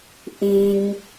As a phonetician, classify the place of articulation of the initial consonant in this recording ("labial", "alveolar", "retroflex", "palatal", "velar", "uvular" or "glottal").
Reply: glottal